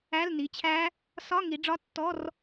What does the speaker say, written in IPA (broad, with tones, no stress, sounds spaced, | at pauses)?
æ˧˥˧ l n i˩˧˩ t͡ɕʰ æ˦˥ | s ɒ˧˥˧ ŋ i˩˧ ɖ͡ʐ ɒ˧˥˧ tː ɔ˧˥˧ r